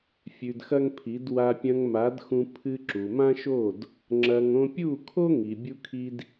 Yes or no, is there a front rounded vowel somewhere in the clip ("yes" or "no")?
no